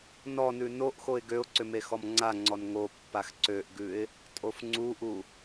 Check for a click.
present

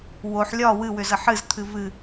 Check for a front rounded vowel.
present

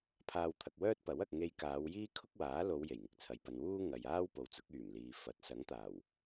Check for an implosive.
absent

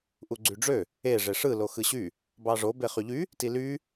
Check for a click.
present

